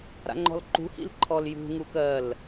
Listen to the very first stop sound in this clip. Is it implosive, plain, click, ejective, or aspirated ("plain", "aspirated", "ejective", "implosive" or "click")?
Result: click